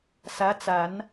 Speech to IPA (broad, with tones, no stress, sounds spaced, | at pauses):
s ä˧˥ t͡s a˨˩˦ n